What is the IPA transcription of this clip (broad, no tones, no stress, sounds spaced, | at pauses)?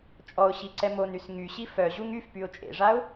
t͡ʃʼ ɔ ʊ̯ ɕ i ǀ ɛ m o n y s ŋ y ɕ i f œ ʑ u ŋ y f p y ʊ̯ t͡ʃʼ ḛ ʐ a ʊ̯